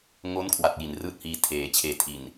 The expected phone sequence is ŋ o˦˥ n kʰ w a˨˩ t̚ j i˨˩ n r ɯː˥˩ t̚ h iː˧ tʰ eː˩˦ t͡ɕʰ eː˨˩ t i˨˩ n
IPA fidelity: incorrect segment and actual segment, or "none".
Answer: t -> tʰ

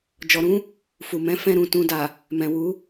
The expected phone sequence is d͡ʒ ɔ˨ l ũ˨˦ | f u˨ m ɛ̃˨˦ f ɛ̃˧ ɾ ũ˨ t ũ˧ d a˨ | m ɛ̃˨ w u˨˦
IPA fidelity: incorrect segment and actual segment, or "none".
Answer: l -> ɾ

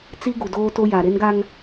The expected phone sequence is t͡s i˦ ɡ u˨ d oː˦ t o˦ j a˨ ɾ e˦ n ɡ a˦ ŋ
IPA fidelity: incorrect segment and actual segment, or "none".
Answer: none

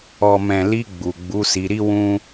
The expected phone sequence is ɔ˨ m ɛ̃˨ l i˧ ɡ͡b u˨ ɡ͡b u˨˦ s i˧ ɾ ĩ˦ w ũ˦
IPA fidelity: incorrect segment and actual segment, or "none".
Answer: ĩ˦ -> i˦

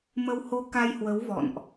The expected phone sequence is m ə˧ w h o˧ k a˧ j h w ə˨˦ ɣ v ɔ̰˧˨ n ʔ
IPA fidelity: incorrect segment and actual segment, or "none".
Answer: ɣ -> w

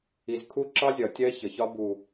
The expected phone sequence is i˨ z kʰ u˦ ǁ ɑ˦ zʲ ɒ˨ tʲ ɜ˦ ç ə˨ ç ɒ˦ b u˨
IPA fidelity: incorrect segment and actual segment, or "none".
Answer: none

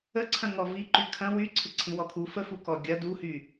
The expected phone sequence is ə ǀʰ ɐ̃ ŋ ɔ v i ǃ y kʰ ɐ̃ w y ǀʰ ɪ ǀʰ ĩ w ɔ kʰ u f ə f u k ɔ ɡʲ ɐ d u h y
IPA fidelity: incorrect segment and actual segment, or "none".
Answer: none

